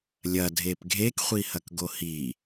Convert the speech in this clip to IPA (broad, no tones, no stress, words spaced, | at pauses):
lʲɐdʱep ɡʱekχʷihɐk ɡohi